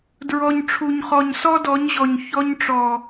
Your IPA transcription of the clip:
dɹɔ˨ɲ ʈ͡ʂʰu˨ɲχɔ˨ɲ sɔ˦dɔ˨˦ɲʑɔ˨ɲ çɔ˦ɲʈ͡ʂɔ˨

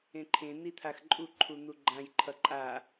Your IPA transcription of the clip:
ẽǃʰẽ n̪it̪ʰaxǃʼu ǃʰun̪uɡ͡ǃãj ǃʰʌǃʼa

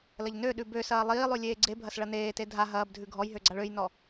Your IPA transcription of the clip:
lɐʎnøɗʉ bøsɐː lˠiːlˠʉ lʲeːɡ͡ǀebʱɐs ɭɐneːte dʱa ɦɐːbdʱʉ ɡʱɔjɦøɡ͡ǀaɭ øjnɔ

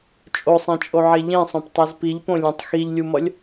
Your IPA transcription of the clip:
t͡ʃʼosˤɛ̃t͡ʃʼoʕe ʎẽsˤõptˤɛz piʎpõlʲẽtˤ xiʎlʲumʌlʲ

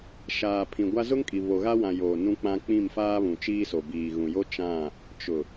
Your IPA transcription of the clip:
ʃaː˨pʰĩ˨ɡʷa˦ zʊ˦ŋkʼi˨ βo˨ɣa˦wã˨ joː˨nũ˦k͡pã˦ k͡pĩ˦˨mfaː˦βũ˨ t͡ʃiː˦so˨ biː˨ɣũ˨jo˦ t͡ʃã˦˨ | t͡ʃʊ˨

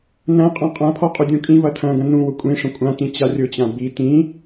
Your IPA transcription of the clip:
nɐ̃ qʼãqʼãpʰɔ qʼudʲũkʼĩvɐ tʰɐ̃ɡɐ̃ nũwʊ kʷʼĩʂɐ̃ kʷʼãtĩ t͡ɕarʲʊt͡ɕã bi tĩ

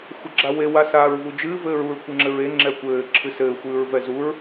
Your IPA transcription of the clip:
xʷɐɡ͡ǁawe wasaːɹvud͡ʒɨː vɘːɹuɹ kʷɨŋ͡ǁɘɹe ŋ͡ǁɛkʷɘː ǁʰɨsɘː xʷɨːɹvɛzuɹ

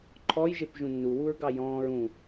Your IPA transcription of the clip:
ǃʰɔjʒep ʒũnːuwuɹɡɑ jɔ̃ːɹ ũ

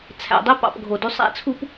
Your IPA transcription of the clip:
t͡sʰæ̰˨dˤi˦ pɑ̰˨p ɡʱo˨dy˦ sˤæ̰˦t͡sʰu˦p

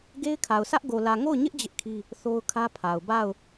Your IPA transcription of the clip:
ɡe˦ɪ̯kʰa˨ʊ̯sä˦ʔ ɡo˨lä˨ ŋo˦˨ʊ̯ɲɪ˦ʔ d͡ʑɪ˦ʔkʰi˦ | θo˦ʊ̯kʰä˦pʰa˨ʊ̯ ba˦˨ʊ̯

